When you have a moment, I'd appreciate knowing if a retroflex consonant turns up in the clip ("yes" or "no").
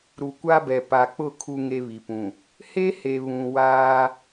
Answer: no